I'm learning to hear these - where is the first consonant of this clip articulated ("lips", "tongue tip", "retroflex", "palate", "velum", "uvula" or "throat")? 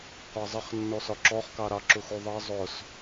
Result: uvula